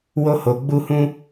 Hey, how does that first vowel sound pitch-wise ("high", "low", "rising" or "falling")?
high